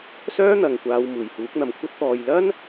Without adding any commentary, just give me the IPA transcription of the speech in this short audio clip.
s œː˥ n̪ ɐ˨ ŋ kʷ aː˨˧ w m uː˨˩ j h uː˨˥ k̚ n̪ ɐ˨ m kʷʰ ɐ˥ t̚ t̪ ɔː˨ j l ɐ˥ n

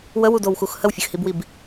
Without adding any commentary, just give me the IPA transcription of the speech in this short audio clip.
w ə w u d o w x u x h ə w fʲ ə x h i b w i b

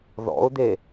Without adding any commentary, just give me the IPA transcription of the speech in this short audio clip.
ð ɔ̰ ʊ̯ d̪ e

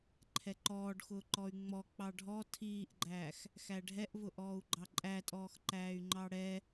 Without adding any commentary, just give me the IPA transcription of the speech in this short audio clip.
ǃʰ ɛ ǃ ɔː ɖ x ʊː ǃ ɔ y̯ ŋ͡m ɔ k͡p ɑ ɖʱ ɔ tʰ iː ʔ ɡ͡ǃ æː x | x æ ɖʱ ɛ ʔ v ʊ ʔ ɔː u̯ ɡ͡ǃ ɑ ǃʼ æ tʼ ɔː x ǃ æː y̯ ŋ͡ǃ ɑ ɽ ɛ

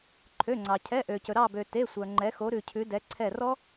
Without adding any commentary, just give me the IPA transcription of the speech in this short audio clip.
ǃʰ ø˩˧˩ ŋ͡ǀ ɑ˩ cʰ ɛ˩˧˩ ʔ ø˩ c ɵ˩ ɾ ɑ˧˩ b ø˩ t e˩˧˩ sʷ œ˩ ŋ͡ǃ ɛ˩˧ x o˩˧ ɾ ʉ˩ cʰ ʉ˩˧ d ɛ˩˧ ǀʰ ɛ˧˩ r ɔ˦˥

